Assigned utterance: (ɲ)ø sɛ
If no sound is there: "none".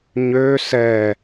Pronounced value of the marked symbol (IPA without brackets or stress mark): ɲ